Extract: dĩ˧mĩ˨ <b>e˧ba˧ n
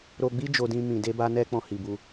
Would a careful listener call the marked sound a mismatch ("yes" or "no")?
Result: yes